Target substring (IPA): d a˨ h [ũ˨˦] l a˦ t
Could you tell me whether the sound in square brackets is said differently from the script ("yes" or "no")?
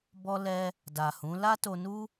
no